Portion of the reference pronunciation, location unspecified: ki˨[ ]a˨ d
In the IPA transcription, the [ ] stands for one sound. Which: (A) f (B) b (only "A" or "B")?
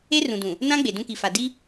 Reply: A